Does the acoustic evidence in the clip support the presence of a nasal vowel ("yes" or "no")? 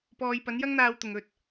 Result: no